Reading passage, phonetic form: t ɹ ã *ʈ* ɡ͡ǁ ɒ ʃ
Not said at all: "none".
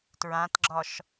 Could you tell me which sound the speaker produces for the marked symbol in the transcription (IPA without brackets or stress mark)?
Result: t